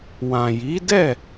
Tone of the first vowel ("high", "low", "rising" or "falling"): low